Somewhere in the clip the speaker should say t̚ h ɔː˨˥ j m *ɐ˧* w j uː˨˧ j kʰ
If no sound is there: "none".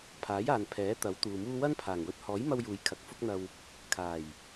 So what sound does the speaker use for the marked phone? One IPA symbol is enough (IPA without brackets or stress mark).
ɐ˧